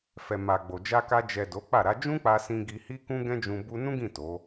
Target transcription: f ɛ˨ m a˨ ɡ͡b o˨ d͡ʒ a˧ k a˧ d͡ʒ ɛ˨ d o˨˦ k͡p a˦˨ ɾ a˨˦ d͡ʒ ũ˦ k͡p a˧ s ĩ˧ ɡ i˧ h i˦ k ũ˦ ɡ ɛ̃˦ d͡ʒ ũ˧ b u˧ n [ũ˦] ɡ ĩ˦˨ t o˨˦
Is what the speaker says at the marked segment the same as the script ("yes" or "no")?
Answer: yes